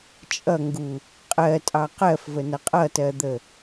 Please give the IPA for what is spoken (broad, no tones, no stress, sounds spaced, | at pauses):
t͡ʃʼ ʌ ŋ ɡ u | qʼ ɜ tʼ ɑ q ɜ f v ə n ʌ qʼ ʌ t ɜ d̪ ə